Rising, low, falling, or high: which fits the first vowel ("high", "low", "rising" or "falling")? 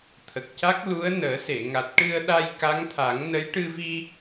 low